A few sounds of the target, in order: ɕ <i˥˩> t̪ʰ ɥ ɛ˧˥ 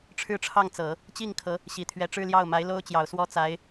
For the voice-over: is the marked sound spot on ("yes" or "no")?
no